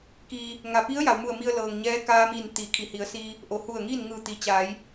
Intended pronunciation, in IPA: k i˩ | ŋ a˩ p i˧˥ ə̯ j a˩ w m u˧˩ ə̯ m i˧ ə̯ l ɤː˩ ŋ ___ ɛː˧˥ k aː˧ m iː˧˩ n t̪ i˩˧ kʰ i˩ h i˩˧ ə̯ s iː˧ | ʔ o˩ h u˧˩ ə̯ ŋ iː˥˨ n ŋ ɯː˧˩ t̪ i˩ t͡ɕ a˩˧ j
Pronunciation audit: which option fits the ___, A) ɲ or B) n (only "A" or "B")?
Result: A